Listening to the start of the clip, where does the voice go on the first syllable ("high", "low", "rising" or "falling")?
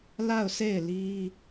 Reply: falling